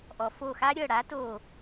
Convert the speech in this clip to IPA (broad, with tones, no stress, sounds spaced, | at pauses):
ʔ ɔ˩ f o˧˩ x a˦ ɾʲ ɤ˥˨ ɽ a˨˦ t o˧˩